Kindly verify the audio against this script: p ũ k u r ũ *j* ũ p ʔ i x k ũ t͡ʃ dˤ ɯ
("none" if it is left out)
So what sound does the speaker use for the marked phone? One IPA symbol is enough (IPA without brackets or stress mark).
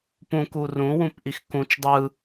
w